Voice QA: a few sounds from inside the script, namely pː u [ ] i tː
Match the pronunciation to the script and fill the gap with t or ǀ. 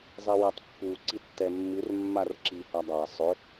ǀ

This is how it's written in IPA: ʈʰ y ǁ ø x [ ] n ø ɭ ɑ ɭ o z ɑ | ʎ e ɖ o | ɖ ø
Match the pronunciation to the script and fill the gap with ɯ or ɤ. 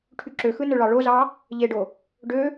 ɯ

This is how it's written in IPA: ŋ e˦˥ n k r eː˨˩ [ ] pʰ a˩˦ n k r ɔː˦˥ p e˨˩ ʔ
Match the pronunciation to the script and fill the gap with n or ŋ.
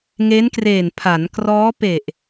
n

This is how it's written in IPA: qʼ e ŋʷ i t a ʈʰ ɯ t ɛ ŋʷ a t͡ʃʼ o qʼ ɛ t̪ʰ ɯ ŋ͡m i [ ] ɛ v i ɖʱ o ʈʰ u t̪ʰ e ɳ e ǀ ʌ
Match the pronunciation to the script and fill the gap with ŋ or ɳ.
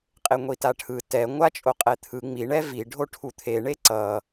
ɳ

